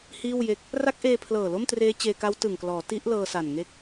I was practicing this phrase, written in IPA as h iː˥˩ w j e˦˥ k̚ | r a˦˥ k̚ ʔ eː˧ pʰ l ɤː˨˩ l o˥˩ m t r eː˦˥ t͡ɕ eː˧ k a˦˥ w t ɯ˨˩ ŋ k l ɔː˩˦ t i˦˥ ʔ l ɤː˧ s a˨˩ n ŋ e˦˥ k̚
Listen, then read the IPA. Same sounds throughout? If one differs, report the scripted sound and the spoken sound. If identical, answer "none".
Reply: none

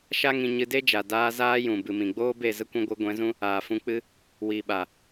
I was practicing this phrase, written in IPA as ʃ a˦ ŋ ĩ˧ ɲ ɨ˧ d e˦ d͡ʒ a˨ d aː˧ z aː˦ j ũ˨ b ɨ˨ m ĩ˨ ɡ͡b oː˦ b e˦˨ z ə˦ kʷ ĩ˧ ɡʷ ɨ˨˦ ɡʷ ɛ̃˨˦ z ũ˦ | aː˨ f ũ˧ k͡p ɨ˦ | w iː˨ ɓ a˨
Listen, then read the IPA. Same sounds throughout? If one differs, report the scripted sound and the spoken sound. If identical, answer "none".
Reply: none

